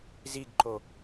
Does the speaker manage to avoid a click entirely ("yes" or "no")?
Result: no